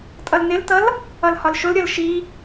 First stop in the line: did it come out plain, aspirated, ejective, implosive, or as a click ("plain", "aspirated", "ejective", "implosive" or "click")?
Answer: ejective